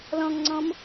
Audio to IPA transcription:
l ɔ̃ ŋ ŋ͡ǀ ɔ̃ m

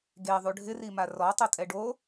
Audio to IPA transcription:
ɡ e ðˤ u ɖʱ ɪ r i m a r ɔ tˤ o tʼ ɛ ɖ o

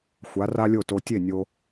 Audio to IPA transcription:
xʷ a˩˥ r a˥ lʲ o˥˩ t o˧ tʲ e˥˩ nʲ o˧

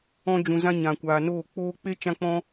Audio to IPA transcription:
ɔ̃˧ d͡ʒ ũ˨ z ã˧ ɲ ã˨ kʷ aː˨ n oː˦˨ k͡p oː˧ k͡p e˦ t͡ʃ ã˧ k͡p ɔ̃˧

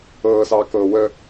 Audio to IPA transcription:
ɤː s ɑː k ɤː w ə

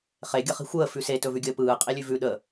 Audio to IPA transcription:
χ e ɡʲ ə χ i̤ xʷ əː f ʉ s e t ɵ v ʉ ɡʲ əː p ɯː qʼ i lʲ ʉ v ʉ ɗ ə

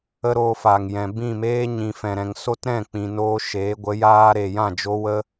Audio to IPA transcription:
ə˦ ɾ oː˧ f aː˨ ŋ j ɛ̃˨ b ĩ˦˨ m eː˦ ɲ ĩ˨ f ɛ̃˨ ɾ ɛ̃˨ ŋ s o˦ t ɾ ɛ̃˦˨ k͡p ĩ˨ n oː˦ ʃ eː˨˦ ɡʷ ə˨˦ j aː˦ ɾ e˨ j ã˦˨ d͡ʒ o˧ w ə˦

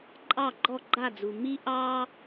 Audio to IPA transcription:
ǃʼ ɑ˥˩ ɡ͡ǃ ɔ˥˩ ɡ͡ǃ a˥˩ d͡z u˩ m i˥ ʔ ɑ˥

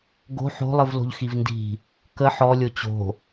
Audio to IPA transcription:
ɡ o̤ ħ o̤ lˠ ɨ v l o̤ ʎ x i v n d i̤ | k ə ħ ɔ lʲ o t͡ɕ o̤

